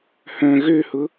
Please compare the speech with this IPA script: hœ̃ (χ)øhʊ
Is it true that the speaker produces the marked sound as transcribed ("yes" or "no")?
no